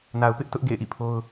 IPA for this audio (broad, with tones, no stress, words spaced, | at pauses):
na˨ʊ̯pɪ˦ʔtʊ˦ʔ ɡḛ˦˨ɪ̯ʔḭ˦˨pʰo˦ʊ̯